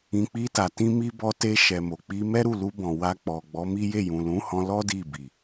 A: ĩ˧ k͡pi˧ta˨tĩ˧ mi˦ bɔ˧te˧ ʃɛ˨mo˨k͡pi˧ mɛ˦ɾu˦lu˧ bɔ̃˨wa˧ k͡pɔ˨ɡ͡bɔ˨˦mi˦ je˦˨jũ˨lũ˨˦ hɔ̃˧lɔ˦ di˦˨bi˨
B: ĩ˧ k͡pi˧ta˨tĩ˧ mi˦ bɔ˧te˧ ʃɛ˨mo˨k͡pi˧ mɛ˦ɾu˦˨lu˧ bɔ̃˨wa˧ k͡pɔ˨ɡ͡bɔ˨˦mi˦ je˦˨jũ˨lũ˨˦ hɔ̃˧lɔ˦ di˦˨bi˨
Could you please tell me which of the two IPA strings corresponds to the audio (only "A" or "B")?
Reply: B